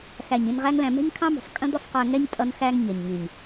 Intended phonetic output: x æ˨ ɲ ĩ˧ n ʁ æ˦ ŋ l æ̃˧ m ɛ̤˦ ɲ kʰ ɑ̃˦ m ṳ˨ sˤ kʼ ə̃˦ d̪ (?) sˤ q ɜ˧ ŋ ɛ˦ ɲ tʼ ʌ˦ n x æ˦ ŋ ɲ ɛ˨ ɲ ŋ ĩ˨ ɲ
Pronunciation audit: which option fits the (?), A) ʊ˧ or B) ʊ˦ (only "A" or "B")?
B